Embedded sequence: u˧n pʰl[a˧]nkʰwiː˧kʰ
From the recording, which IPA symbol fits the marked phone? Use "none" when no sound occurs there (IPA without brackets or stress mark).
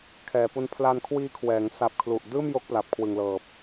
a˧